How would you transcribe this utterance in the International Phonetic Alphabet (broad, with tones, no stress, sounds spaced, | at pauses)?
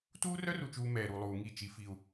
t uː˦ r œ˦ r u˨ t͡ʃ uː˨ m ɛː˨ ɾ u˨ lˠ uː˨ ŋ i˦˨ t͡ʃ i˦ f i˦ u̯